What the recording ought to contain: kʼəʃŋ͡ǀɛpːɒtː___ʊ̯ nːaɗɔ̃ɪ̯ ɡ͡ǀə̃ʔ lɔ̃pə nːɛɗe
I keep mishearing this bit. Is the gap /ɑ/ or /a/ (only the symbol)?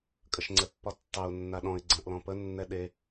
ɑ